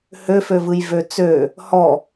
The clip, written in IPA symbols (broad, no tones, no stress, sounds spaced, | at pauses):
h ø f ø v ɯ j v ø t͡s ø | h ɔ